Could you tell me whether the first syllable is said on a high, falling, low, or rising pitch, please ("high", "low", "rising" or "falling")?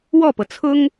falling